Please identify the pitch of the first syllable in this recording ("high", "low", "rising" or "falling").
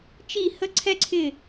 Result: falling